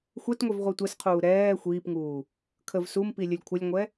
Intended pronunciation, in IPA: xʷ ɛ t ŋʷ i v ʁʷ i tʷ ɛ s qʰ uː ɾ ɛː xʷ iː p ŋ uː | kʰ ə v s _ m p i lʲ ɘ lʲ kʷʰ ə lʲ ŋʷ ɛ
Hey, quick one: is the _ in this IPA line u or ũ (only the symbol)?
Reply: u